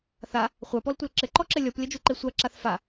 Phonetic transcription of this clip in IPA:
θ a | χʷ a p ɔ l tʷ ɐ l ǁ ɘ ǃ ɔ ǁ ɘ lʲ ɔ p lʲ ɐ d͡ʒ u ǃ e sʷ a ǁ a θ f a

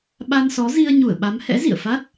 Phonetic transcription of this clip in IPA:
ɓ a˧ n s ɔ˨˦ z i˧ ə̯ ɲ u˧˩ ə̯ ɓ a˨˦ m h ɛ̰˧˥ z ḭ˧˨ ə̯ f a˦˥ t̚

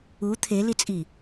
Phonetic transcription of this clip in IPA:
u t̪ʰ e l i t͡sʼ i

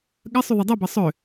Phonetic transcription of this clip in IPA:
ɠ ɐ sˤ y ðˤ ɛ dˤ u b ɐ sˤ ø

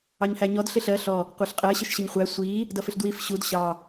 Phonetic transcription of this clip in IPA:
ɑ ɲ h æ ɲ ɔ d ɬ ɪ ɬ ɜ ɬ ɔ | qʷ ɑ ɬ qʼ ɜ ɕ ə ʃ ɕ ə ɲ χʷ æ sʷ i | d ʌ f ɪ ɬ d w i f ɕ u d ɕ ɑ

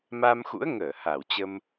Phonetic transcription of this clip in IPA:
m a˧ m x ṵ˧˥ ə̯ ŋ əː˧˩ h a˧˩ w t͡ɕ ə˧ m

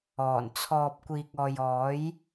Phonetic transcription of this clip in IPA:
ɔː˨˩ n t͡sʰ ɔː˨ p̚ kʷ iː˨ k̚ ɔː˨ j ɔː˨˥ j

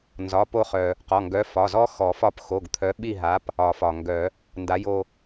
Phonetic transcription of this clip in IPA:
n z ɒ˩˧˩ p o˦˨ χ œ˩ | q ɔ˩˧˩ ŋ ɡ œ˨˥ f ɒ˩˧˩ z ɔ˦˥ x ɔ˨˩˦ f ɒ˦˨ p x o˩˧˩ ɡ t̪ʰ œ˨˥ ɓ i˦˨ ɦ a˨˥ p | ɒ˨˩˦ f ɒ˩ ŋ ɡ œ˨˩˦ | n d a˨˥ j o˦˨

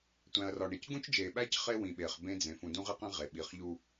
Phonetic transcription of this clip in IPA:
tʷ æ̃˨ ɐ̯ r ɒ˨ ɳ e˨ c ɡ ũ˦ t͡ʃ d͡ʒ eː˨ ɓ æ˦ c χ e˦ w ĩ˨ ɓ eː˨ χ b ẽ˦ d͡z ẽ˨ f ũ˨ d ũ˦ ʁ i˦ q ĩ˦ ʁ e˨ ɓ i˨ χ ʎ u˦

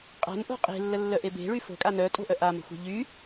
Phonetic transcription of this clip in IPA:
qʼ a̤ n ʔ o̤ qʼ e̤ lː ə lː œ ʔ e b e̤ ɭ y f o̤ kʼ a n œ tʼ o̤ ʔ œ ʔ a m ə̤ xʷ a̤ ʎ y

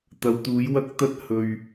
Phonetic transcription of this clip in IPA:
t̪ ɐ˨˧ w t̪ uː˨˥ j w ɐ˥ k̚ t̪ ɐ˥ t̚ h ɵ˨ ɥ

